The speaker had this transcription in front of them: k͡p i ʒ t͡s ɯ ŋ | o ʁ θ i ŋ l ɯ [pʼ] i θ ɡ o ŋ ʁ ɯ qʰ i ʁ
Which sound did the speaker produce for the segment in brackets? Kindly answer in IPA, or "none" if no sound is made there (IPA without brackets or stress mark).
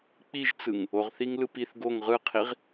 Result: p